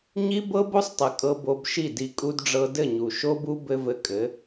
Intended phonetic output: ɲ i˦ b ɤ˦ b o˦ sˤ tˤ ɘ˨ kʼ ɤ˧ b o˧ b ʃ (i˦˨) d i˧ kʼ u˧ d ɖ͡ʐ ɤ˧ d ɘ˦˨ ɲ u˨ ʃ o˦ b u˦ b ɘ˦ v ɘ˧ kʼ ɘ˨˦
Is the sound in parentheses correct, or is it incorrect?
correct